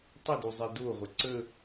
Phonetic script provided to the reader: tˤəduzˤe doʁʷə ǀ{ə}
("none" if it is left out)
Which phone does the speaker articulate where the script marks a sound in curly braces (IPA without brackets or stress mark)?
ə